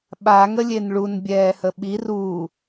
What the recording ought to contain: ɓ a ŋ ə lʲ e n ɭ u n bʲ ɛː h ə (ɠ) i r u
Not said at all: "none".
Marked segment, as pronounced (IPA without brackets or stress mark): ɓ